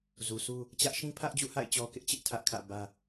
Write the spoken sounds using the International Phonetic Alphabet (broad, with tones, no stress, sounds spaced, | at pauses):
z u˨ s u˦ | t͡ɕ ä˦ ʔ ʃ ĩ˦ pʰ ä˦ ʔ d͡ʑ ṵ˦˨ h a̰˦˨ ɪ̯ t͡ɕ ɔ˦ k ɪ˦ ʔ t͡ɕ ɪ˦ ʔ tʰ ä˦ ʔ kʰ ä̰˦˨ b ä˦